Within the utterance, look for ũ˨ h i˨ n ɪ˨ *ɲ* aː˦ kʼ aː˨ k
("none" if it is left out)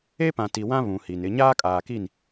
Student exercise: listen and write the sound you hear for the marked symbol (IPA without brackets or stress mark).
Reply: ɲ